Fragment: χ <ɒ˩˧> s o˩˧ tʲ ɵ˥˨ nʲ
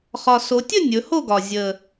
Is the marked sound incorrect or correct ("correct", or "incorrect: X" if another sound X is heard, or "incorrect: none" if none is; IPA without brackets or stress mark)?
incorrect: ɒ˨˩